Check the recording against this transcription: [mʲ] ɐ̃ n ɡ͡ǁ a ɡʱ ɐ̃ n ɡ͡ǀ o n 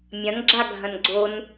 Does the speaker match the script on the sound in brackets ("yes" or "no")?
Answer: yes